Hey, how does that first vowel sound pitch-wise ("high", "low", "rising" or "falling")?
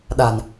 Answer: low